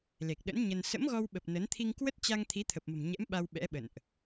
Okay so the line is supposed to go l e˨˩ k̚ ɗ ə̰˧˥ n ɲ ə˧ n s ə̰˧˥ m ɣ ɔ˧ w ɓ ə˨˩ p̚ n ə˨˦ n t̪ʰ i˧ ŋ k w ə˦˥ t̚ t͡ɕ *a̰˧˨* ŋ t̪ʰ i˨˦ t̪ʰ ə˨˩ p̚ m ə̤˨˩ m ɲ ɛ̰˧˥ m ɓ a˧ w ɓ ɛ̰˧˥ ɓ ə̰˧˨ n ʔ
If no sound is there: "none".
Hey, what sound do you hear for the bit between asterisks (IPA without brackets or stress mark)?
a˧